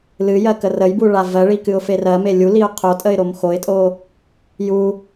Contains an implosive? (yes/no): no